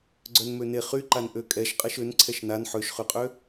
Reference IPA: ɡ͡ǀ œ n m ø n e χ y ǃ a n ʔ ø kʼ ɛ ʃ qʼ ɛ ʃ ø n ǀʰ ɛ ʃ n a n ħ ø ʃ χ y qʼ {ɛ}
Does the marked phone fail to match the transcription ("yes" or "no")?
yes